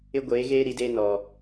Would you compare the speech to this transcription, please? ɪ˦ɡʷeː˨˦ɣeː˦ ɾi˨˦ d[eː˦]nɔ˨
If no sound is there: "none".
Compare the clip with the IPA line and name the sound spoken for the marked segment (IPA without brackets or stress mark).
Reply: eː˦